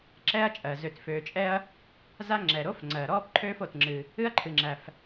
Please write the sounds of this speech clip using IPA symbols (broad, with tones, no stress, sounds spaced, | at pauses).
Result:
ǁ ɛ˦ ɐ̯ t͡ʃʼ ɜ˩ z ø˩ t f øː˩ t͡ʃʼ ɛ˦ ɐ̯ | z a˦ ŋ͡ǁ ɛ˩ ɾ o˦ f ŋ͡ǀ ɜ˩ ɾ ɔː˦ p ǃʰ øː˦ f o˩ t ŋ͡ǁ ɨː˩ | ɨ˦ ɐ̯ ǃʰ ɨ˩ ŋ͡ǁ æ˩ f